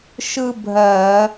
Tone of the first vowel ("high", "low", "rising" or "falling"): high